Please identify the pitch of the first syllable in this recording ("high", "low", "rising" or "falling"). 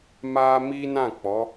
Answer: high